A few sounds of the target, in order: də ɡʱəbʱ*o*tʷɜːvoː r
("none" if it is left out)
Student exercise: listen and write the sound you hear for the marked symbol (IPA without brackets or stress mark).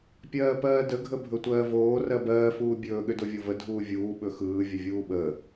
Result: ɵ